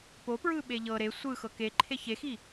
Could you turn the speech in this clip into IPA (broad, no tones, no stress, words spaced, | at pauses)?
popɹɯ ɓeʎɤ ɾe sʷɯ xɤkeǃʰe çexi